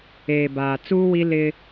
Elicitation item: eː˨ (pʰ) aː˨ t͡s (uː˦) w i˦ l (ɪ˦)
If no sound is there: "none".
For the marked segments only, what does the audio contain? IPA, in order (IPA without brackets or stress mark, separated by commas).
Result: b, uː˦, ɪ˦